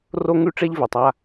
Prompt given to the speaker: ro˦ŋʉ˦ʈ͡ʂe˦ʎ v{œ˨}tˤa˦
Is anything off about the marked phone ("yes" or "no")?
yes